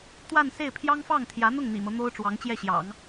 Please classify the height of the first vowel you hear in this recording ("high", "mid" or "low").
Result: low